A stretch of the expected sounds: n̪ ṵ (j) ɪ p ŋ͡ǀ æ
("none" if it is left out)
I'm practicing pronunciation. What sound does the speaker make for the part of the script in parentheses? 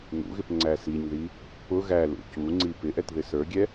ɣ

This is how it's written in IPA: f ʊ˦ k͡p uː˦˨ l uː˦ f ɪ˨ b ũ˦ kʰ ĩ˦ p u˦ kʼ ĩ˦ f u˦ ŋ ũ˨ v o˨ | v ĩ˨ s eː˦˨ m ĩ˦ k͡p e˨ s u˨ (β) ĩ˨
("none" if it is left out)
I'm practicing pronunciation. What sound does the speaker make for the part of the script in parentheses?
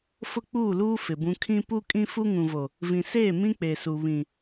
β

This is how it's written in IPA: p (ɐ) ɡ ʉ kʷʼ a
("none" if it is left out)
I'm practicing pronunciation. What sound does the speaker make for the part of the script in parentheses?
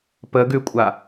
ə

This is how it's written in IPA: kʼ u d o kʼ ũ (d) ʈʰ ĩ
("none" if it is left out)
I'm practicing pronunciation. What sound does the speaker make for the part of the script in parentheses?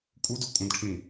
d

